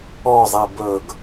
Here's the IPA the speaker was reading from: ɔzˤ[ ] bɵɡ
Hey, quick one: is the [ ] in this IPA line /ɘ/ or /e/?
e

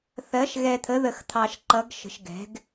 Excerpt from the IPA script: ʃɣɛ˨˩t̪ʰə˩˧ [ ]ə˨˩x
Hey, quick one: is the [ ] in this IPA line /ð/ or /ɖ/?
ð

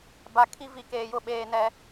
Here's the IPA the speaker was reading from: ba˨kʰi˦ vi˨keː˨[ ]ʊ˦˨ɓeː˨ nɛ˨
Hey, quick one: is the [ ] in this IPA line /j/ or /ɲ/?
j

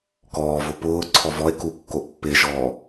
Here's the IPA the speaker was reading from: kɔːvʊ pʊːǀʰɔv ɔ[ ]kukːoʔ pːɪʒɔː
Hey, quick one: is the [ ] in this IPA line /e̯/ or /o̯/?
e̯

